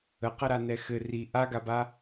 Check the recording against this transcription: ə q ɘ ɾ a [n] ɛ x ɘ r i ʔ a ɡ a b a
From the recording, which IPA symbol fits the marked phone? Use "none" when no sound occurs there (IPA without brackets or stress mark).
n